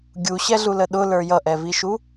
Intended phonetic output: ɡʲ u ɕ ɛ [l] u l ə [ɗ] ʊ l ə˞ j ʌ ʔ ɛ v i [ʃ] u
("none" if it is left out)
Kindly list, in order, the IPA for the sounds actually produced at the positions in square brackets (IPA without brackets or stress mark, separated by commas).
ɮ, ɗ, ʃ